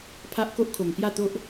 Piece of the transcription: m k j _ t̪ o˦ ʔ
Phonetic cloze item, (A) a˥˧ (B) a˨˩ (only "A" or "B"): A